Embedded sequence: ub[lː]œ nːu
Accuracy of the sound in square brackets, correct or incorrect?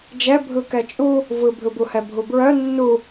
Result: incorrect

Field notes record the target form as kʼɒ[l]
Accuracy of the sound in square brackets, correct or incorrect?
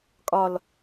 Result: correct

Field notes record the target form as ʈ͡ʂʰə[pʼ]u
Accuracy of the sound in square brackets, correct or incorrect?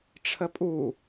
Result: correct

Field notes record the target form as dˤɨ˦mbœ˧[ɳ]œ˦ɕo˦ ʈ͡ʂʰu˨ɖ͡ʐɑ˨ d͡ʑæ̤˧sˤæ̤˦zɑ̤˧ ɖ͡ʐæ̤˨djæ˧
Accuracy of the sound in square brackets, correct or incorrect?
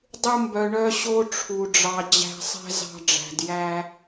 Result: correct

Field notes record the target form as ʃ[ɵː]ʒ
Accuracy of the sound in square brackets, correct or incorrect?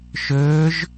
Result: correct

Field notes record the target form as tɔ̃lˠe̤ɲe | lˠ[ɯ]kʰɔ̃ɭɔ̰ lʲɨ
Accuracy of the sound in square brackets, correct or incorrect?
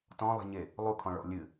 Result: incorrect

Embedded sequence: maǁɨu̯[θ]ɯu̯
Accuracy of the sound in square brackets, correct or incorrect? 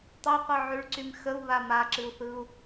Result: correct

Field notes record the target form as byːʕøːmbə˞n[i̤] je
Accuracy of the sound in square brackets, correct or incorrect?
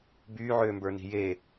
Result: correct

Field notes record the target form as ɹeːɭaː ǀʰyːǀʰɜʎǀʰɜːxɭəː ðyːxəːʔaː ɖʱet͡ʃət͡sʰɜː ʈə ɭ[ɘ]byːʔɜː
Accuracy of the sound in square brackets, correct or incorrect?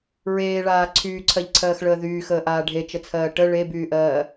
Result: incorrect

